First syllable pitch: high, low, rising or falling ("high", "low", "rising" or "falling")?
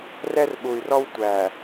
high